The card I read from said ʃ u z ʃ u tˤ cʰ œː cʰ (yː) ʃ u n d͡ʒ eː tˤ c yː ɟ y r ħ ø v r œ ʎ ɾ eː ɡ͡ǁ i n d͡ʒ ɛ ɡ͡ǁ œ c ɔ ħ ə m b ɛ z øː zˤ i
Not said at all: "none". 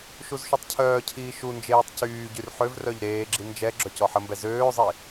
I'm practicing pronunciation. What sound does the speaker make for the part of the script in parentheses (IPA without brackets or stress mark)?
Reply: iː